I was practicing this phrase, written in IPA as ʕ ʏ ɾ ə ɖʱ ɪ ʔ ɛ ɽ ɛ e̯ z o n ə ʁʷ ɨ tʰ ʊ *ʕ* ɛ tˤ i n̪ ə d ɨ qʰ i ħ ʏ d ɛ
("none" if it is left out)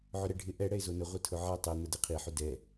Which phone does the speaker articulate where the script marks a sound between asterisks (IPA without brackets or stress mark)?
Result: ʕ